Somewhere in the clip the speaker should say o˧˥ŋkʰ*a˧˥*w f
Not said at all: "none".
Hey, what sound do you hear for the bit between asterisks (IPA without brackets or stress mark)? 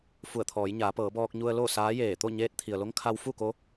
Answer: a˧